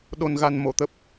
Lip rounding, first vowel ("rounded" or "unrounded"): rounded